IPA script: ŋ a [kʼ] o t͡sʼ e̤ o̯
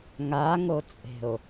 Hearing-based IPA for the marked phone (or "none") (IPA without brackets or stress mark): ŋ